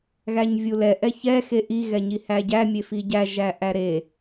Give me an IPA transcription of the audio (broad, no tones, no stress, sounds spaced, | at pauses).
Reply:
ɣ æ ɲ vʲ u l ɛ ʔ ɛ ç ɛ x e ʔ i ɣ ɛ ɲ i h æ ɟ æ mʲ e f i ɟ æ ʒ æ ʔ æ ɾ e